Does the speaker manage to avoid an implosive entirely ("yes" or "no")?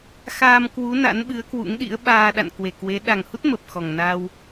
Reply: no